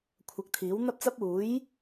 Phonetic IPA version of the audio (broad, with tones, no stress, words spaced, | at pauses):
kʷʰɐ˨˥k̚t̪ʰiː˨˥wn̪ɐ˥p̚t͡sɐ˥p̚ uː˨˥j